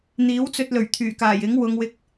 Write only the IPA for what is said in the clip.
n̪iː˨˥wt͡sɵ˧t̚lɵ˨˩ɥ t̪ʰyː˨˩kaː˨˩jɪ˨˥ŋ wʊ˨˧ŋ wɪ˧k̚

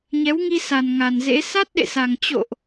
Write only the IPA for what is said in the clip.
ɲɛ˨˦wŋi˧sa˨˩n ŋa˨˩nzḛ˧˥ sa˦˥t̚ɗḛ˧˨sa˨˩ŋ t͡ɕo̰˧˨ʔ

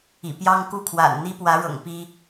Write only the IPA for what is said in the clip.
ḭ˨˩pjɑ˥ŋku˥˩kʰwa̰˨˩n n̪i˥pwä˧˥ɻɤ̰˨˩ŋ pi˥

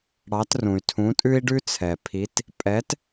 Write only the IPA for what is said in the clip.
ɽɑ˨˦trũ˩y̯ tʰũ˨˦tʼʉ˦i̯ɖʉ˦t͡sʰɛ˩ pʰi˨˦t | pʼɛ˨˦t

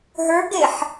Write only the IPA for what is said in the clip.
ɦə˞ɡeħ

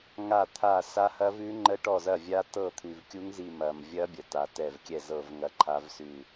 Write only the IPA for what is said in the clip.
ŋa˦˨t̪ʰa˦˨ sa˦˥hɐ˦˥ vʉ˦˥ŋ͡ǃə˦˥ ʈɔ˦˨zɐ˦˨vʲa˦˥ tɤ˦˨t̪ʰʉ˨vkʲu˦˥ŋ zi˦˨m ɐ˨mvʲɐ˦˥bʲə˨ ta˨tɛ˦˨vkʲɛ˦˨zɤ˦˨v ŋɐ˦˨ǃʰa˦˥vsʉ˦˨

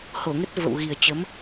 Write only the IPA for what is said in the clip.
ho˧˩ŋə˦˥t̚ və̰˧˨wɣi˨˩ə̯t͡ɕə˨˦m

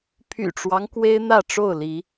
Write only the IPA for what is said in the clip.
pʰy̰˨˩ʈ͡ʂwɑ˦ŋ kwe˦ɪ̯n̪ä˥˨ʈ͡ʂo˥˨ʊ̯li˨˦

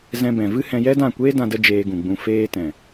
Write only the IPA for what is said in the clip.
zɛ̃˧bɛ̃˨ vɨ˦hɛ̃˧jɛ˦ dã˦˨kʷeː˦dã˧də˧ d͡ʒeː˧ɡũ˨ɡ͡bũ˧ feː˧tɛ̃˨

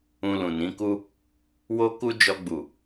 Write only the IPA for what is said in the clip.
ũ˧lũ˨nĩ˨˦ku˦ | wo˦ku˦ d͡ʒɔ˧ɡ͡bu˨

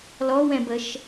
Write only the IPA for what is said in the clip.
lɔwɛ̃bəʃ

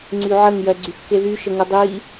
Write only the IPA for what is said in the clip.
ŋ͡ǀyʕəŋ jɜɡ͡ǀyfkeðy ʃəŋɯdˤi

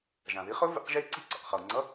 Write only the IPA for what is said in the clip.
ʒã˩ði˨˥χɵ˨˥ vḛ˨˩˦qʒe˦i̯ ǀi˨˥ǀo̰˩qχʌ˩u̯ŋ͡ǀʌ˨˥

